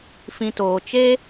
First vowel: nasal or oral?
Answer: nasal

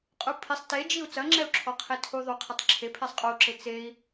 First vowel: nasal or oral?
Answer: oral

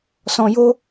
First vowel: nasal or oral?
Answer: nasal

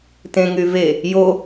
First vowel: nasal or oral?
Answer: nasal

